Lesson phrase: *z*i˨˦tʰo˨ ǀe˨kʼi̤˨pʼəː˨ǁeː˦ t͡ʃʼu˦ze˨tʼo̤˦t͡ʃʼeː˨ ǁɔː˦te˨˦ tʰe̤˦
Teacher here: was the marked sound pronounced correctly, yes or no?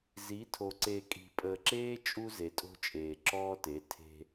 yes